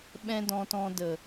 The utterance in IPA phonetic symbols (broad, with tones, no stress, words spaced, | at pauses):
ɓɛ̃˦dɔ̃˧tɔ̃˧ də˨